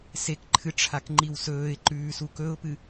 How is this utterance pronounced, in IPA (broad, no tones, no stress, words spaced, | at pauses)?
sekǃʰɨ ʈ͡ʂʰakŋ͡ǃiwsɵːɪ̯ǃʉː sukɵʊ̯pɨ